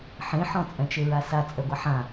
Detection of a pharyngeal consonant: present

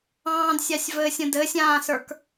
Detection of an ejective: absent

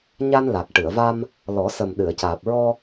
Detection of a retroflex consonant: present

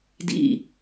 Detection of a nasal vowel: absent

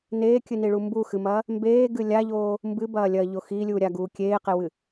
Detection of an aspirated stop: absent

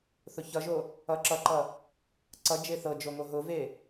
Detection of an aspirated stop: absent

